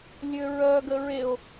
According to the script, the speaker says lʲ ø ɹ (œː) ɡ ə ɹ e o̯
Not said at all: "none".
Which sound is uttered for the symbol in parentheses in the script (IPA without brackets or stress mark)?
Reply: œː